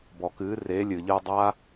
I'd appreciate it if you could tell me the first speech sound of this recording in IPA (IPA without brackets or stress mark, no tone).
b